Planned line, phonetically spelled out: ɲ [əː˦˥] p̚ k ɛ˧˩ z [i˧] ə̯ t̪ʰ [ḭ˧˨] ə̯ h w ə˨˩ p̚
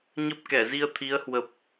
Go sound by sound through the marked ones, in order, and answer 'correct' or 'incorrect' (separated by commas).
incorrect, correct, incorrect